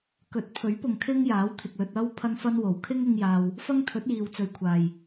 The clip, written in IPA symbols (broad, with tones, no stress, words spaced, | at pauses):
kɵ˨˥t̚pʰɵ˨˥ɥpʊ˨ŋ kʰɪ˥ŋjaː˨˥wt̪ʰɪ˨k̚lɵ˧t̚ ɐ˥w pʰɐ˥nfɐ˥n wo˨˩wkʰɪ˥ŋ ɪ˥ŋjaː˧w | fɐ˥ŋt̪ʰɵ˨˥t̚jiː˨wt͡sɵ˨ɥ kʷʰaː˨˩j